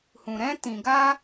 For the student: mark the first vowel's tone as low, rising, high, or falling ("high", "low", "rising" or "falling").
low